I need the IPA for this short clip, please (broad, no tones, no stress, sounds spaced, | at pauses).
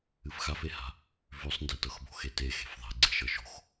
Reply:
ɨ f x a f e h a̤ | v ʉ sˤ n d e t ɤ x b o̤ x e t e x e̤ f ðˤ e̤ ɡ͡ǀ e̤ ʃ ɤ ʃ o̤ x